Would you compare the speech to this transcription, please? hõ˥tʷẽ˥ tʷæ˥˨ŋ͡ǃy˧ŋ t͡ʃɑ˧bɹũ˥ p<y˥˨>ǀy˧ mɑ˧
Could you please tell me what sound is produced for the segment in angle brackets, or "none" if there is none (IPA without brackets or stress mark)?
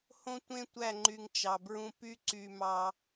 y˥